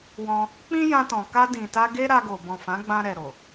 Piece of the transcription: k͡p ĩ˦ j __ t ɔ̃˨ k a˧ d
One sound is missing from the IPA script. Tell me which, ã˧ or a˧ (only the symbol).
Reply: ã˧